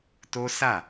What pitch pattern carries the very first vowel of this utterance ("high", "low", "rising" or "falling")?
high